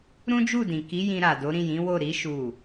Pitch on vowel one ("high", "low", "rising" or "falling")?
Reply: high